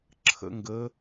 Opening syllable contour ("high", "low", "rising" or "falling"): rising